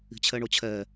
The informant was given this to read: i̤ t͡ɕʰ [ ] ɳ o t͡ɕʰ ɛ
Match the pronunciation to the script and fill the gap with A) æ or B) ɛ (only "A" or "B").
B